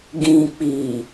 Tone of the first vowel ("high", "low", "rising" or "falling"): low